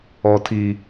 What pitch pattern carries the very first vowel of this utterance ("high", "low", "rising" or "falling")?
low